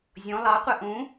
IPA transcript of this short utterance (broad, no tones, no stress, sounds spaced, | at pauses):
zʲ õ lˠ ɑ qʷ æ ʔ ũ